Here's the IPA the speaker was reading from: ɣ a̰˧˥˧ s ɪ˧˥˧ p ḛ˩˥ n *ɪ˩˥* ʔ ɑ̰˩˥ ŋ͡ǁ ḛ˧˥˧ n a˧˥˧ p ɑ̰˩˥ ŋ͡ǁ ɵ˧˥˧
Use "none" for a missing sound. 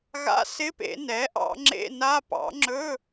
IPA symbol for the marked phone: ɛ˩˥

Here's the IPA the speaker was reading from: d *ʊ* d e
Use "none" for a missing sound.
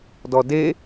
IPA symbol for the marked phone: ɔ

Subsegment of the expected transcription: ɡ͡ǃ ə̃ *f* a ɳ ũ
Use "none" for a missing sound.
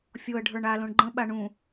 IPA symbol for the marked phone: ɓ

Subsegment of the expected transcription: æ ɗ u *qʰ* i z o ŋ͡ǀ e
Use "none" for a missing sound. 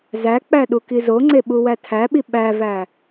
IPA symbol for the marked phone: k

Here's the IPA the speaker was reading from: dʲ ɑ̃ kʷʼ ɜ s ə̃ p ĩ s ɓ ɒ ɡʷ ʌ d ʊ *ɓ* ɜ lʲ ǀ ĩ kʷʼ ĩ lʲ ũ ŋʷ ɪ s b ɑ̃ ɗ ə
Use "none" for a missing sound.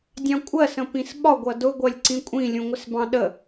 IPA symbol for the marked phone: ɡʷ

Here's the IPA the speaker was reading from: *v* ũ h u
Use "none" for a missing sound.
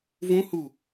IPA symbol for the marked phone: v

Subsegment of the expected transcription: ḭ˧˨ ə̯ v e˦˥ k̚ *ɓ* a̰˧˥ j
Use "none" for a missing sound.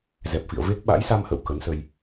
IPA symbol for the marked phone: ɓ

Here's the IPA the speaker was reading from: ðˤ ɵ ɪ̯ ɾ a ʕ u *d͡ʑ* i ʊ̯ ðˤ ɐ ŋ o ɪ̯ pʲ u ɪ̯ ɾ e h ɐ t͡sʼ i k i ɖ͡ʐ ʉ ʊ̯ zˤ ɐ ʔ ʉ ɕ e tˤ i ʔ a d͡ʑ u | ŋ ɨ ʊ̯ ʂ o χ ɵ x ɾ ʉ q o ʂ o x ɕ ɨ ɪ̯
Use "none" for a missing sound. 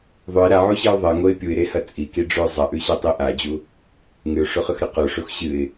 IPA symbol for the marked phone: ɕ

